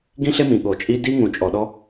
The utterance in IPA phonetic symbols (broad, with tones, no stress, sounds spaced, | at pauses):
ɡ ĩ˦ ɬ e˦ m ĩ˨ ɠ o˨ t͡ʃʼ i˦ d i˦ ŋ ũ˨ t͡ʃʼ ɔ˨ ɗ ɔ˦